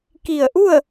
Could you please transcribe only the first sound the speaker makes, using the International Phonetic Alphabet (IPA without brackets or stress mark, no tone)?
k